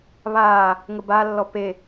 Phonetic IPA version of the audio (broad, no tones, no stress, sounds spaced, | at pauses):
β aː | ŋ ə b a lː ɔ p e